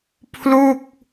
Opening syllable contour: falling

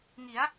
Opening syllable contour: rising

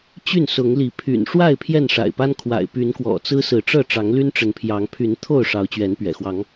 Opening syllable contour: falling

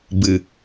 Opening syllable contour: low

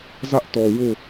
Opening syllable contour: high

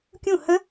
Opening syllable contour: falling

